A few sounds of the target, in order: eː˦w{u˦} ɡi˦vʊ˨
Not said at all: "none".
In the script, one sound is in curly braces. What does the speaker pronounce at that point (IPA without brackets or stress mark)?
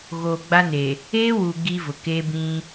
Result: u˨